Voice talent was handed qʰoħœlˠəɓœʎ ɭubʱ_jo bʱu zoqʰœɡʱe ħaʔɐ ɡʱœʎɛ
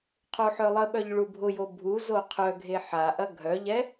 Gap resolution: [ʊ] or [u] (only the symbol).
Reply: ʊ